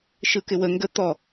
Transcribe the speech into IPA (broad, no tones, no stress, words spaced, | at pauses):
ʃɯkɪwə ŋɡə t̪ɔ